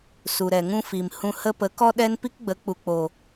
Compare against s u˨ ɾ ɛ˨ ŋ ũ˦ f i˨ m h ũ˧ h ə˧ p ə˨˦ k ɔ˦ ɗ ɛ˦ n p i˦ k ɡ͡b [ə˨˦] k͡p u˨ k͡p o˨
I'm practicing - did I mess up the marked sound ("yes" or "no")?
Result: no